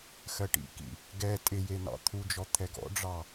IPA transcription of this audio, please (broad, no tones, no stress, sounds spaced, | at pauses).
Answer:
x ɜ ʈ ḭ k ḭ | ɡ ɛ tʼ ɪ j e n ɑ̰ t̪ʰ u d͡ʒ ɔ t̪ʰ ɛ ɡ ɔ̰ ɖ͡ʐ ɑ